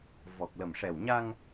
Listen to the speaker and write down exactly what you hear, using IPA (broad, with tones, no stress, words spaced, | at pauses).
vɔ˨˩k̚lə˨˩mʂɛ˨˩wɲa˧ŋ